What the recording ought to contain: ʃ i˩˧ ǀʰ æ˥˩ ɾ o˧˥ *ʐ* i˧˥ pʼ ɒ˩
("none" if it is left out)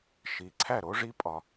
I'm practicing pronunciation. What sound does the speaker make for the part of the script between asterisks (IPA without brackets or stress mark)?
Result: ʐ